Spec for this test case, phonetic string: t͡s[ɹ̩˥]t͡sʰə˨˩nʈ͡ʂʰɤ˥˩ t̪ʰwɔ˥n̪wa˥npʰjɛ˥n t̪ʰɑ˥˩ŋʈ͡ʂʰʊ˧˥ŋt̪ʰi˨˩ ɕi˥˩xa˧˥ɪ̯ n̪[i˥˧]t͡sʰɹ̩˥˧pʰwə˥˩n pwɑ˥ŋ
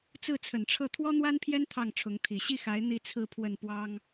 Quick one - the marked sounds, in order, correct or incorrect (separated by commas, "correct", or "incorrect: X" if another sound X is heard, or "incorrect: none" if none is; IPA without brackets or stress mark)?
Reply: incorrect: ɹ̩˥˩, correct